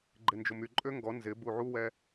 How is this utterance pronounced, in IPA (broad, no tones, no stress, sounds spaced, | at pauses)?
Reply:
ɡ͡ǃ ɪ n d͡ʒ ʊ m y ǃʼ ø ŋ ɡ ɔ n z ɪ b u ʕ u w ɛ